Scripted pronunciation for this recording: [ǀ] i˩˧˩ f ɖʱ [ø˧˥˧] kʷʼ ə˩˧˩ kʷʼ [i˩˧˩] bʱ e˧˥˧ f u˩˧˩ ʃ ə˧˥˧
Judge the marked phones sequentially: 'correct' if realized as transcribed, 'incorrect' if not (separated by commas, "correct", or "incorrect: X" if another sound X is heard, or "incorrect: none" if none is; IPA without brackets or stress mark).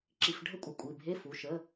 incorrect: ǁ, incorrect: ə˧˥˧, correct